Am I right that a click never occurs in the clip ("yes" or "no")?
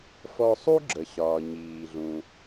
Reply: no